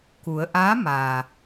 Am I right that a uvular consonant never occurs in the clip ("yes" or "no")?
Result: yes